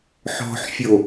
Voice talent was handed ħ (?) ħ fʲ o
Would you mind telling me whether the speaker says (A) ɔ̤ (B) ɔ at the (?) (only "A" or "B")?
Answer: A